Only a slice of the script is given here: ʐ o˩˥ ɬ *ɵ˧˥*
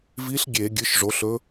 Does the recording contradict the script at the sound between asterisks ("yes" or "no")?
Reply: no